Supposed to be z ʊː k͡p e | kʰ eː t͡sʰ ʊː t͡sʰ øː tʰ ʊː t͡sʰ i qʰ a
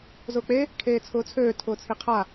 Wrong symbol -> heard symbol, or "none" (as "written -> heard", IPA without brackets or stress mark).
none